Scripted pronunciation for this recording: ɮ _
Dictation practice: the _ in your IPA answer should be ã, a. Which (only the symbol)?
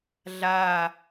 a